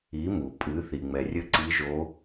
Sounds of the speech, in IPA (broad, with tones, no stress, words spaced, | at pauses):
i˩˧mu˩ pʼɨː˩˧θi˩ŋ͡mɛ˩rʲɘ˧˥ ǀi˧˥ʒo˧˥